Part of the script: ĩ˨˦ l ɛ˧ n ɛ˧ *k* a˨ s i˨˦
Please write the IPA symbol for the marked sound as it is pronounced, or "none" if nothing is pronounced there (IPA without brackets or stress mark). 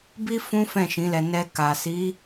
k